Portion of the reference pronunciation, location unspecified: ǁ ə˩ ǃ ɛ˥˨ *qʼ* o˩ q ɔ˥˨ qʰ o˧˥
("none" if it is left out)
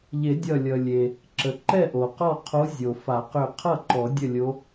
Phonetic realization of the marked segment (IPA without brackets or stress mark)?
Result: ʔ